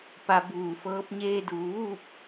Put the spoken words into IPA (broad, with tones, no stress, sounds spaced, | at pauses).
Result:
p a˧ b uː˧˩ f ɤː˧˥ p̚ ɲ eː˧ d uː˩ ʋ uː˥˨ p̚